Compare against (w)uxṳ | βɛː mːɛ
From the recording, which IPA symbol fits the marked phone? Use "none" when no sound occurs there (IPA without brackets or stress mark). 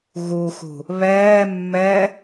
ɣ